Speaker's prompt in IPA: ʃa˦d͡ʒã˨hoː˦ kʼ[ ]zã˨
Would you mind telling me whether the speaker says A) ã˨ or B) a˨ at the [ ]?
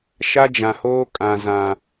A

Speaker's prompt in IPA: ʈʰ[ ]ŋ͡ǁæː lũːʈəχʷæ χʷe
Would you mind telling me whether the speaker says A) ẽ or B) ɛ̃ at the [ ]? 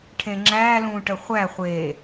A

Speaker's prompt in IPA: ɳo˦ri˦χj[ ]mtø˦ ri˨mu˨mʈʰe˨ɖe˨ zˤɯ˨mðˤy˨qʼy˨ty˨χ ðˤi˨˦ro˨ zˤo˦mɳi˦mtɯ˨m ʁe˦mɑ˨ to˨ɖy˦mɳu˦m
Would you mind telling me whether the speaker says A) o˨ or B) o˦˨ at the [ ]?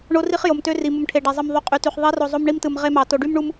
A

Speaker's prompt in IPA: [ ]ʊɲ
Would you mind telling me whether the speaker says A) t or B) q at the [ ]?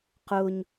B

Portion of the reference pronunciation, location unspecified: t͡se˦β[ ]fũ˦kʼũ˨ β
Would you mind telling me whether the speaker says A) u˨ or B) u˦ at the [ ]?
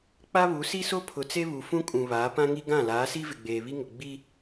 A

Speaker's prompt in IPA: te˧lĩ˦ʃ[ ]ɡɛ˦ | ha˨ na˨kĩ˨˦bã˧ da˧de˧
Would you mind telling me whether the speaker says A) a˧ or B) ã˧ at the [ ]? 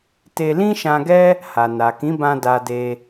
B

